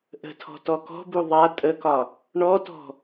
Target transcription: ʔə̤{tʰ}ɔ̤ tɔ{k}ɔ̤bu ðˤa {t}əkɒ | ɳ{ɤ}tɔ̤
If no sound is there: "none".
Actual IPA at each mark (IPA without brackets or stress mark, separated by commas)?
tʰ, k, tʼ, ɔ